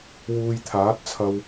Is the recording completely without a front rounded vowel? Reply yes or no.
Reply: yes